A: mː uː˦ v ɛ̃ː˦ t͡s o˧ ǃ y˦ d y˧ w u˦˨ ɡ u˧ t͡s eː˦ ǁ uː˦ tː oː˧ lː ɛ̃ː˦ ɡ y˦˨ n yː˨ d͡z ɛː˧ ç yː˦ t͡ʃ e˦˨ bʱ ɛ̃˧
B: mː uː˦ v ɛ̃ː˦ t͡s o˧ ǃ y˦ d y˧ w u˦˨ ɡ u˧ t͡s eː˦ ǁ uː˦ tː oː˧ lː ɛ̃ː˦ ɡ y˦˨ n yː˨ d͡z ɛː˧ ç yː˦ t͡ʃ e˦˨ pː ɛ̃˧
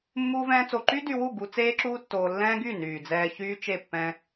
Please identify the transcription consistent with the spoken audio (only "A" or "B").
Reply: B